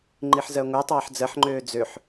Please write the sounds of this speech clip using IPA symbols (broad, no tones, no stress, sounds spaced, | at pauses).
ŋ͡ǃ i ħ z ɜ ŋʷ ɜ tˤ ɑː ħ d͡z ɜ ħ ŋ͡ǃ øː d͡z ø ħ